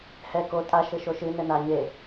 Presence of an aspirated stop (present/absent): absent